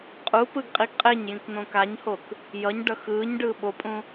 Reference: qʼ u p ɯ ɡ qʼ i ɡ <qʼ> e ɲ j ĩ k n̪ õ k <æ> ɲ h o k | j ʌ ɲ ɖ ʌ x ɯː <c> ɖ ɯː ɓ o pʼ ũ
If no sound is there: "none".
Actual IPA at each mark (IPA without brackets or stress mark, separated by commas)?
qʼ, a, ɲ